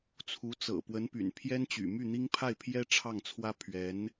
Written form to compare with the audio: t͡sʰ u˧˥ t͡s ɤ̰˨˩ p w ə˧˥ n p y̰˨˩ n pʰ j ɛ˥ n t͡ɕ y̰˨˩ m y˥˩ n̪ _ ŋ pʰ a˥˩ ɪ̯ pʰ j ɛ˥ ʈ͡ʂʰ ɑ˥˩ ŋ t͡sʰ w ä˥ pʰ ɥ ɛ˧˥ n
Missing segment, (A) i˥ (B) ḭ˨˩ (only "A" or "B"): A